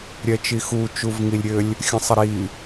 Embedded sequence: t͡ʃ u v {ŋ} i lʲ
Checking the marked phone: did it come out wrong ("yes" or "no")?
no